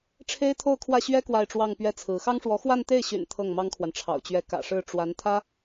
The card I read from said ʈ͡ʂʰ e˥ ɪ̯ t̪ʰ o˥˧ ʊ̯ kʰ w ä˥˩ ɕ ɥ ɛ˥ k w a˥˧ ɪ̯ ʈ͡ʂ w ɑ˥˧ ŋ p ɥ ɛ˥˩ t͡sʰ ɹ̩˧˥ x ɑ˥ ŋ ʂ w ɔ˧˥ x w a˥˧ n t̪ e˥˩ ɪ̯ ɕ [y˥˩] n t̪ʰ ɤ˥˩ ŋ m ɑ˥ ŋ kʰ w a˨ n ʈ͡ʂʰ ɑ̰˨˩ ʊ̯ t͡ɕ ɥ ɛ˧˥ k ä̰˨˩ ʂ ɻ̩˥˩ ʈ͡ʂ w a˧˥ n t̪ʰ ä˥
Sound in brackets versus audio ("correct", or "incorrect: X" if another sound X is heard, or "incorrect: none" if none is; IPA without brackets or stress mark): incorrect: y̰˨˩